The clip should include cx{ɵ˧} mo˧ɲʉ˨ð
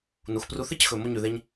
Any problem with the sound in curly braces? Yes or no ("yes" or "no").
yes